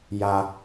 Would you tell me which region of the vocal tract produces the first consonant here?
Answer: palate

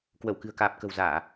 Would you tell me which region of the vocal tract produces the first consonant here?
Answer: velum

